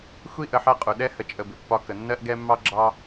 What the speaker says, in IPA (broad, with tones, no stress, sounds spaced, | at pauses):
xʷ i˦ ʔ ə˧ ħ ɜ˦ qʼ u˨ ɗ ɛ˦ h ə˧ t͡ʃʼ ə˧ b ɪ˨ pː ɒ˧ k ə˨ nː ɜ˦ ʔ ɡ ɛ˦ mː ɑ˦ ɡ͡ǁ ɑ˦